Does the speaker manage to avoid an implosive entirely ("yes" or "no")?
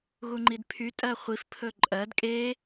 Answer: yes